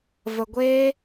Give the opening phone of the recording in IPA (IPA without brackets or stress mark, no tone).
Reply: v